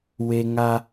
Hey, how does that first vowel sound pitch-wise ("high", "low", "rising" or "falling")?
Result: high